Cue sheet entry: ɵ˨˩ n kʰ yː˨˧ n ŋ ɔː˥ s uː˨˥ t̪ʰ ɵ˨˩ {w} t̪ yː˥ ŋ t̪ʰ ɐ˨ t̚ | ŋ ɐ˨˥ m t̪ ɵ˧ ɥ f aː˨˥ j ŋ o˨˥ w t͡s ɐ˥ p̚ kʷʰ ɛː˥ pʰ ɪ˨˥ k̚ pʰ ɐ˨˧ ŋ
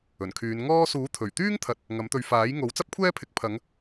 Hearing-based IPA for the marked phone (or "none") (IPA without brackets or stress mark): ɥ